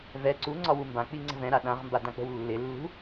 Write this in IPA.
v ɛ ǀ u ŋ͡ǀ ɒ w u m b ã k͡p i ŋ͡ǀ ə̤ v ɛ̃ ɾ a ɗ ã ʁ m b a d ã k͡p ə̤ w lː ɪ lː ṳ

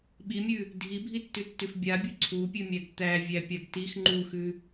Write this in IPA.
ɓ i mʲ ʉ | dʱ i bʱ i tː ʉ tː ʉ f bʲ a bʲ u ǀʰ u pʲ ʉ mʲ æ ɡ t̪ æ vʲ æ pʲ a ɡ t i x ŋ͡ǃ u x ʉ

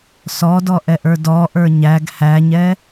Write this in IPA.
s ɔ d ɔ ʔ ɛ ʔ ə˞ d ɔ ʔ ə˞ ɲ æ ɡ h æ ɲ ɛ

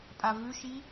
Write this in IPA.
pʼ a v ʉ ʃ i

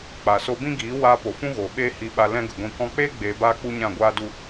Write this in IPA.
k͡p a˨ s o˧ b ĩ˦ ɡ iː˨˦ w aː˧ p o˨ f ũ˦ ɣ oː˨ ɓ eː˦ h i˧ ɓ a˧ l ɛ̃˦ ɡ ə˨ ɡʷ ĩ˧ k ɔ̃˧ k͡p eː˦ ɡ͡b eː˧ b aː˦ k͡p u˦ ɲ ã˦˨ ɡʷ aː˦ d u˦

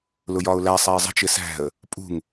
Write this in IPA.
l ʊ j ɒ ʊ̯ l æ sˤ æ ɪ̯ zˤ ə̤ t͡ʃ ɪ s æ̤ ə̯ | pʼ ṳ ŋ

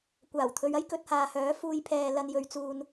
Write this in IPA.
kʷ aː˨˩ w t̪ʰ ɵ˨˧ ɥ ɐ˥ j k ɵ˧ t̚ h aː˨ h œː˨˥ f uː˨˧ j pʰ ɛː˨ l ɐ˧ n j ɵ˨˧ ɥ t͡s uː˧ n

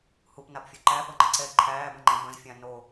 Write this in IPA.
h u p n a p fʲ o ǃ æ p ɤ ŋ͡ǃ ə̃ ǀ ɛ ǃʰ æː b ə̃ ŋ͡ǃ ɛ̃ b ə̃ z fʲ ã n o

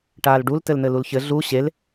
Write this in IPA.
ʈ aː l ɖ u l t ɘ l n̪ ɘ l u l ç ɘ ɮ u ɕ e l

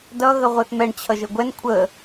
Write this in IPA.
d ʌ ɣ ə ʁʷ ɛ θ m ɛ ɳ t͡ɕʰ ʌ ʒ ə ɡʷ ɛ n kʷʰ ə

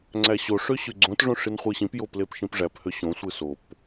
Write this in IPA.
ŋ͡ǀ æ ɕ o ʂ ø ɕ y ɡ͡ǀ õ t ʐ õ ʂ i n χʷ ɯ ɕ ĩ p j o p l e p ʃ ĩ p ʐ æ p h ø ɕ õ sʷ ɯ s o p

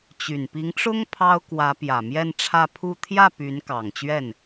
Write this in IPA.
t͡ɕ y˨˩ n p i˧˥ ŋ ʈ͡ʂ ʊ˥ ŋ pʰ ɑ˥ ʊ̯ k w ä˧˥ p j ä˨˩ m j ɛ˥˧ n ʈ͡ʂʰ ä˥˧ pʰ u˥˧ t̪ʰ j ä˥˩ p y˧˥ n k ɑ˨˩ ŋ t͡ɕ ɥ ɛ˥˩ n

